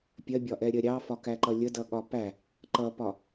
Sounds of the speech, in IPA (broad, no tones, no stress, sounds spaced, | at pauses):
pʲ ɜ bʲ ɒ ʔ ɛ ɾʲ ɜ ɾʲ ɑ f ɒ k æ ǃ ʌ lʲ ə d ʌ ɠ ɒ p æ | ǃ ʌ p ɒ